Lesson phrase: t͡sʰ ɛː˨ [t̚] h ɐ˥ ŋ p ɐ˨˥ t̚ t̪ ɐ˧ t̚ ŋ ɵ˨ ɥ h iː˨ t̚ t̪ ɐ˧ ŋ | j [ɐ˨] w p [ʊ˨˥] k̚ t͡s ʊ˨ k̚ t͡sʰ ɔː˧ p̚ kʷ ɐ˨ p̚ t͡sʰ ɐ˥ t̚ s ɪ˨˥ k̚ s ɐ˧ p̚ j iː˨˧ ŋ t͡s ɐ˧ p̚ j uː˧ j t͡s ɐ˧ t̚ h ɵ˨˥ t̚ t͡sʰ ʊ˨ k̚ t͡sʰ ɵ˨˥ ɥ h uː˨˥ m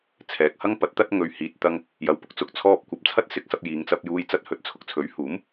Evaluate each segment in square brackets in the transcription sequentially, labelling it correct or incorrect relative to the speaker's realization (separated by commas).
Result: incorrect, correct, incorrect